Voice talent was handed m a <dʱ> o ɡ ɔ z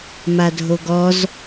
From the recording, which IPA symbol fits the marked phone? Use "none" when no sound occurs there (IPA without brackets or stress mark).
dʱ